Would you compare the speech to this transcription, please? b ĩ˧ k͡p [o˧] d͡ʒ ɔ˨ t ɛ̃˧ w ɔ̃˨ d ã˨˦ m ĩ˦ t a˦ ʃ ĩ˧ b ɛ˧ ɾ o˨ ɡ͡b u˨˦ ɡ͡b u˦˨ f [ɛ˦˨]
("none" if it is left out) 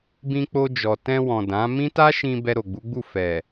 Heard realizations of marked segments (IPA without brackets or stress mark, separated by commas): o˧, ɛ˨